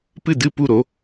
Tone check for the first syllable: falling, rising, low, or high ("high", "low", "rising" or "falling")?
falling